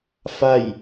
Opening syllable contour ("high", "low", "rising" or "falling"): falling